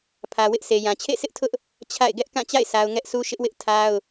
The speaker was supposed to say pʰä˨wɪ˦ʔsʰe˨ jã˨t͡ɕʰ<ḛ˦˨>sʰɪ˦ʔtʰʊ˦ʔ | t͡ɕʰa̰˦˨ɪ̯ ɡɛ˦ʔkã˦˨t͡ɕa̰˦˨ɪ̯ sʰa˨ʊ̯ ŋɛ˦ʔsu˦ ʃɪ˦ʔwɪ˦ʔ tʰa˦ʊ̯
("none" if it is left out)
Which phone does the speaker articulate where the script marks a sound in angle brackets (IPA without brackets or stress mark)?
ḛ˦˨